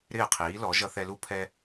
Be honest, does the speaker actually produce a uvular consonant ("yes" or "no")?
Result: yes